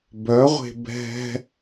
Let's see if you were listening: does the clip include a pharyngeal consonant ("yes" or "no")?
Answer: no